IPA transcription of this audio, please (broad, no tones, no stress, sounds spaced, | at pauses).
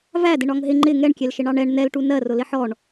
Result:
v æ d ɪ ɳ ɒ ŋ ɦ ɪ ŋ͡ǃ ɪ ŋ ɛ ɳ kʲ ɛ l ʃ ɪ ɳ ɑ ɳ ɛ ɳ n ɛ l ʈ u n ɜ r ʊ l ɪ ħ ɔ ɳ